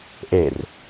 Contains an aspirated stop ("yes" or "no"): no